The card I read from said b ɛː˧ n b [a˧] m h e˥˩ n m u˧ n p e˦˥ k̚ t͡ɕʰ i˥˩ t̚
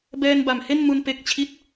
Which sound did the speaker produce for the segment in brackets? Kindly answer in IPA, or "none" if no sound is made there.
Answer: a˨˩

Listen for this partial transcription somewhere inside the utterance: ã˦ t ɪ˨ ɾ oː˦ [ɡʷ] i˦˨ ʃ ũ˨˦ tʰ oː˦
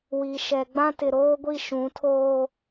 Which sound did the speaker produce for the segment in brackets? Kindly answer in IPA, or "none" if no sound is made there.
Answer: ɡʷ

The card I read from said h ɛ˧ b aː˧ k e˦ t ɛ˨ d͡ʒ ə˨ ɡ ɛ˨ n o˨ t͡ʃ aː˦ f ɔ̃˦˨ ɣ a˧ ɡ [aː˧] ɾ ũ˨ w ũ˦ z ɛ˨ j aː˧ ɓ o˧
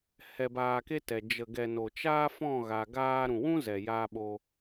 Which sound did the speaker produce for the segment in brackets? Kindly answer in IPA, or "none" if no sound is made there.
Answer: aː˧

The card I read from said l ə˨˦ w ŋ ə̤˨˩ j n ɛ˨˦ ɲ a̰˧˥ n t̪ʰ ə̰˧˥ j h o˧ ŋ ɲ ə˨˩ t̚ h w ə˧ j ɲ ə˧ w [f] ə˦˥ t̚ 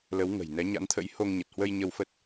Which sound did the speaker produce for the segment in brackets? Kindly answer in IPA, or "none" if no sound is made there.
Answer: f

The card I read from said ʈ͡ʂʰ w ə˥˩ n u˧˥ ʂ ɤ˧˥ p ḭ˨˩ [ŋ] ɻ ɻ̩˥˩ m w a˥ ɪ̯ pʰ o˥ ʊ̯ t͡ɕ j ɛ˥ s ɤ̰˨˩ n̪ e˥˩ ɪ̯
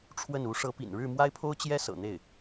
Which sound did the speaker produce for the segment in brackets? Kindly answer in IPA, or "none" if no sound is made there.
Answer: n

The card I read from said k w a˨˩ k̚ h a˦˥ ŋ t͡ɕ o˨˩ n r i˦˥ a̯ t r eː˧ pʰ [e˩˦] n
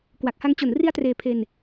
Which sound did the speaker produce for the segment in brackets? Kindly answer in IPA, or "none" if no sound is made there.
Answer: e˧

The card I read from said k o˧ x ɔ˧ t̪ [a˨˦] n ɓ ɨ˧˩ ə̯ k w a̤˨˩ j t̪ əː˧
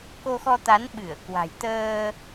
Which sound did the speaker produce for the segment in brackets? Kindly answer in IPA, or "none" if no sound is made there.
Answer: a˨˦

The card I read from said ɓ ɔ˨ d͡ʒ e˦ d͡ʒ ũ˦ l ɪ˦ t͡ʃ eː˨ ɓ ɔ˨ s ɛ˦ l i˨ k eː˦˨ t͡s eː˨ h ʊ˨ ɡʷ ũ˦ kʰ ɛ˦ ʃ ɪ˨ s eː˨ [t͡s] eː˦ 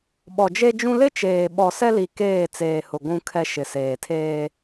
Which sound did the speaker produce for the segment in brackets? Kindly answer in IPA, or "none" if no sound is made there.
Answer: tʰ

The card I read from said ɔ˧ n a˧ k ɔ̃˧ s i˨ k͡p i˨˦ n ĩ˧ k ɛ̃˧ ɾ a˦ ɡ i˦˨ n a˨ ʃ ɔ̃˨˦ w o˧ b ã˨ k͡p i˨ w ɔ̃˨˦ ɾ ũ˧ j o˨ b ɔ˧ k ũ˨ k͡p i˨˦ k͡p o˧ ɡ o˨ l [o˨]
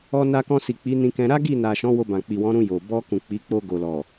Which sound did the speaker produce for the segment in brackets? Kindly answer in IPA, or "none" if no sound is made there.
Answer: ɔ˨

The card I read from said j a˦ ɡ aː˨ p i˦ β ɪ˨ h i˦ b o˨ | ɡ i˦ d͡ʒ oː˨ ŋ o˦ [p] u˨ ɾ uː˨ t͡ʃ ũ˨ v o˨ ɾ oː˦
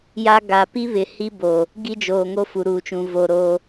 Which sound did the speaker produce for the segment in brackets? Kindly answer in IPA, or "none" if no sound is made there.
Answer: f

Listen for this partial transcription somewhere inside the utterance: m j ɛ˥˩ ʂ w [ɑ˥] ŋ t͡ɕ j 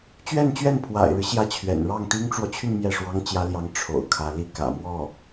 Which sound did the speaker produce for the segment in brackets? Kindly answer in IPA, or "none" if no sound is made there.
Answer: ɑ˥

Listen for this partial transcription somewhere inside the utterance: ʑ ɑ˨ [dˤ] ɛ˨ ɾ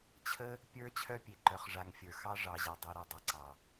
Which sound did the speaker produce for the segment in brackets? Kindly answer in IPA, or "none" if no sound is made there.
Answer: dˤ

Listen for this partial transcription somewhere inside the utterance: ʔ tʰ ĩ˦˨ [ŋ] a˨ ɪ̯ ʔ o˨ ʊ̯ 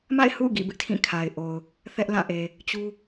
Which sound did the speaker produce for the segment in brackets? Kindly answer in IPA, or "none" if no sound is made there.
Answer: kʰ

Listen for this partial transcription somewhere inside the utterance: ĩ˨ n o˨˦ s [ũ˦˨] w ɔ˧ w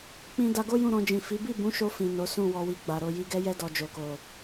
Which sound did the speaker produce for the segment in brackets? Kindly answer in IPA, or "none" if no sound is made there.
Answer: ũ˦˨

